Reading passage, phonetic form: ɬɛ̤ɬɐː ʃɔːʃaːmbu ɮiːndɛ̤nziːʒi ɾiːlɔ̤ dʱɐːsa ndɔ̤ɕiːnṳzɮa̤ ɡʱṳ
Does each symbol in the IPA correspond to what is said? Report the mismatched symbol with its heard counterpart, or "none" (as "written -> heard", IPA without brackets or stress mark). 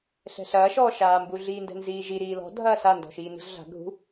ɕ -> ʃ